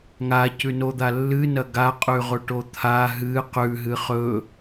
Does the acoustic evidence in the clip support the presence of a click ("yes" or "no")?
no